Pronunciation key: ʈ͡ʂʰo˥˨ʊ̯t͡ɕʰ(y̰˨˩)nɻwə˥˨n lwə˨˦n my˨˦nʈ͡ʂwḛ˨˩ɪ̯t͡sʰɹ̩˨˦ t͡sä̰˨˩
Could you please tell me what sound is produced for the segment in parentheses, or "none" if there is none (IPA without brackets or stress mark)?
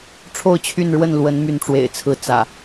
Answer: y˥˨